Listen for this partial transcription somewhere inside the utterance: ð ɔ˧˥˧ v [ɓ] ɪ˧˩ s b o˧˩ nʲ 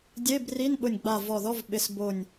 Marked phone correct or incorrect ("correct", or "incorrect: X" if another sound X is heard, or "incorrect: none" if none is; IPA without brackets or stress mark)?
correct